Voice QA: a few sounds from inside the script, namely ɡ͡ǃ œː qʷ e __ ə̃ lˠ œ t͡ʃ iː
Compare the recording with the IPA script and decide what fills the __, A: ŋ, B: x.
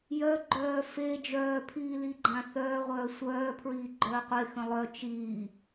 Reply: B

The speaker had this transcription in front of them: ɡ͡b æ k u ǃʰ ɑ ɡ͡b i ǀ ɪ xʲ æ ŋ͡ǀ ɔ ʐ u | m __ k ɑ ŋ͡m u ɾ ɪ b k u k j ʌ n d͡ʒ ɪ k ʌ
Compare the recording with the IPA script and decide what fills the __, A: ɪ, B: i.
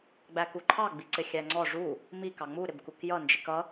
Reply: B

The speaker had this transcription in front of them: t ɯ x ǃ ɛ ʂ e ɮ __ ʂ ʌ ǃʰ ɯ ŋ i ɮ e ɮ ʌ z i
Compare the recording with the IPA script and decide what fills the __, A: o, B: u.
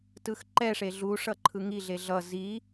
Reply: B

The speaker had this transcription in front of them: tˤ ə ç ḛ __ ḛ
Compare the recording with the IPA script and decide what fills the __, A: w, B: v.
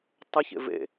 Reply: B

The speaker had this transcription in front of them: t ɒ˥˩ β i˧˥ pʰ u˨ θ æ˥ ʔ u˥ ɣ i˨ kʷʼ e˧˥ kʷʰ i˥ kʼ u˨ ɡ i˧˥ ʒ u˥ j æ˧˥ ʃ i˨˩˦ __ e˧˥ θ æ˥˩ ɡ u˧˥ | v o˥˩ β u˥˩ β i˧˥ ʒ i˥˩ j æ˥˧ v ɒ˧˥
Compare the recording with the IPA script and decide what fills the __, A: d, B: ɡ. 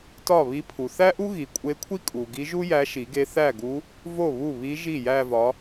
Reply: B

